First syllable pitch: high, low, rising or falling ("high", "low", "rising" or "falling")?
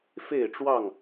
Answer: falling